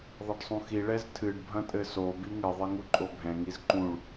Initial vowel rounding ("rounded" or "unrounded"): unrounded